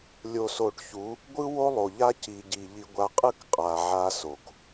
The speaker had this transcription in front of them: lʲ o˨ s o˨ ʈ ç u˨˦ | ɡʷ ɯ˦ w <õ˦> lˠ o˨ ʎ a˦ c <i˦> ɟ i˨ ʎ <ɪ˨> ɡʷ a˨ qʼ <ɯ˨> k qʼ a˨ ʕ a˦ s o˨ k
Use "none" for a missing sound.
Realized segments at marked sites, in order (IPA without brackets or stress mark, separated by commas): o˦, i˨, i˨, ɯ˦˨